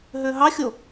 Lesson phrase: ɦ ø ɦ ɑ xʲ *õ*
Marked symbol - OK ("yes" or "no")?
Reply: no